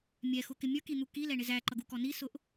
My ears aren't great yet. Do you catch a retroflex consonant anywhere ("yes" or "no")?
yes